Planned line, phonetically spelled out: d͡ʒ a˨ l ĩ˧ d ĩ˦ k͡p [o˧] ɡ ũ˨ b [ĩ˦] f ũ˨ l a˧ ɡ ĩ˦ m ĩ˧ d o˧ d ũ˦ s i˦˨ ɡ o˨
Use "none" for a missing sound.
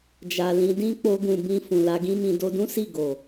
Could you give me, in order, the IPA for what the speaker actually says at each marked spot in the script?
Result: o˧, ĩ˧

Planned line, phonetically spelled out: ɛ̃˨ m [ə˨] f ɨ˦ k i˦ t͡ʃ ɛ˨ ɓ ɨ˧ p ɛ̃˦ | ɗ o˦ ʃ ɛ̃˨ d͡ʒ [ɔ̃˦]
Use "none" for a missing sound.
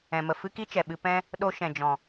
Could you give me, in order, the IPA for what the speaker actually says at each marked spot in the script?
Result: ə˨, ɔ̃˨

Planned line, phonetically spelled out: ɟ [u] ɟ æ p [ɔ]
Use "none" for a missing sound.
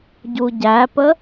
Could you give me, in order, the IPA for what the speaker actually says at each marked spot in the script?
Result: u, ə

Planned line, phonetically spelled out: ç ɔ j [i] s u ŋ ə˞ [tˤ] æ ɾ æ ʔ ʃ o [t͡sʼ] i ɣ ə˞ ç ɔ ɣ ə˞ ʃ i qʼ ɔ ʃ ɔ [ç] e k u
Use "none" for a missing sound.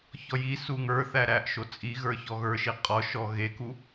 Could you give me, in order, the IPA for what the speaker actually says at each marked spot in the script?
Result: i, θ, t͡sʼ, ɣ

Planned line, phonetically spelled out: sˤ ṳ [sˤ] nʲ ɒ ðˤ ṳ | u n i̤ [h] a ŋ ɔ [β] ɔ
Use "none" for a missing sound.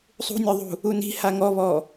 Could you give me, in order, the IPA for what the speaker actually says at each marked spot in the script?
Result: none, h, β

